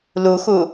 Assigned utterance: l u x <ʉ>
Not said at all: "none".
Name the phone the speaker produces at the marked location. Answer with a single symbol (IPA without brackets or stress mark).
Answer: u